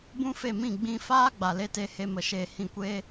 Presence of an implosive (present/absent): absent